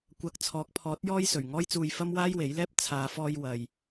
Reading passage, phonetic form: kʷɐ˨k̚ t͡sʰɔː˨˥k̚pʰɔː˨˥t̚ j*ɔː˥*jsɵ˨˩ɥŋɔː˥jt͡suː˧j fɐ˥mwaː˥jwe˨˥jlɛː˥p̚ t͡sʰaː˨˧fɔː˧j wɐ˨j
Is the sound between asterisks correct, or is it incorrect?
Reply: correct